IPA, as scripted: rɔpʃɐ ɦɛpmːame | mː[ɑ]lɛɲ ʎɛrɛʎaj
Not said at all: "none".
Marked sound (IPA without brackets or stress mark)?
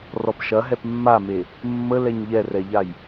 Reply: ə